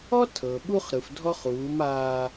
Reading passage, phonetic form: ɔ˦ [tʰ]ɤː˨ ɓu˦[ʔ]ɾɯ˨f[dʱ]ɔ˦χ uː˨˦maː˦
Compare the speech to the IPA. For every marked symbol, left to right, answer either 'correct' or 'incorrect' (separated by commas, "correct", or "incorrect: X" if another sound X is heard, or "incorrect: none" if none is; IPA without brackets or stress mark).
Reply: correct, incorrect: χ, correct